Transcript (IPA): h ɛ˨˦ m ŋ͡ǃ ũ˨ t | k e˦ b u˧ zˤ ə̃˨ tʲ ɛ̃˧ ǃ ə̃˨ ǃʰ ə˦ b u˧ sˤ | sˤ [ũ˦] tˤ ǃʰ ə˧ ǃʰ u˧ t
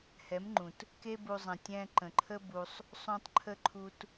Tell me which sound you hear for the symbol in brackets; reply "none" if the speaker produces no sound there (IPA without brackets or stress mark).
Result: ũ˧